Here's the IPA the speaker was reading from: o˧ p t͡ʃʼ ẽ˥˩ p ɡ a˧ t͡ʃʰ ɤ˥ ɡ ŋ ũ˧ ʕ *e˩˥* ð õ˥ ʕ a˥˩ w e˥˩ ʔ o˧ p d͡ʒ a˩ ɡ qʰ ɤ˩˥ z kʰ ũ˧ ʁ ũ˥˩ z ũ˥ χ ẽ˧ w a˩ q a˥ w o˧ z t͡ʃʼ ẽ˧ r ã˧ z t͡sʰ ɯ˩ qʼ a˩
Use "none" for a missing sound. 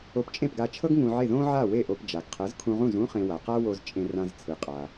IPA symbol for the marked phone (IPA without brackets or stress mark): e˥˩